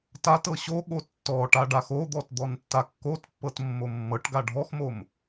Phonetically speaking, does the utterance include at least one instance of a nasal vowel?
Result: no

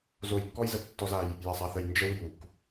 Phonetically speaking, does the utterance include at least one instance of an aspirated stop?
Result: no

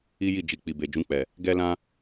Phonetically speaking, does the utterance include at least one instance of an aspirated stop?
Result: no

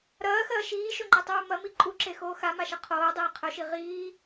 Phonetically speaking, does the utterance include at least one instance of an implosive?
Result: no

